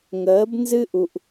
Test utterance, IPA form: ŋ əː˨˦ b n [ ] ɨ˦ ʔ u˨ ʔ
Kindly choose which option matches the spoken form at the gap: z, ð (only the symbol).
z